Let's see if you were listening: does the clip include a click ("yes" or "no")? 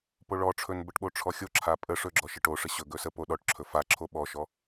yes